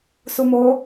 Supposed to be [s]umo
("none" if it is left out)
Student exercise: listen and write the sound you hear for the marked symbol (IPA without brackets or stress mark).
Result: s